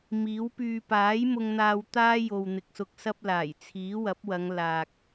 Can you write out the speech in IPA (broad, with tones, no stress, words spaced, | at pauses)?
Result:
miː˨˥w pyː˨paː˨˥j mʊ˧ŋn̪aː˧wt̪aː˥ jo˨w n̪ɪ˨k̚sʊ˧k̚sɐ˥p̚ laː˨˩j t͡sʰiː˨˥wɐ˨˥p̚wɐ˨˧ŋ laː˨k̚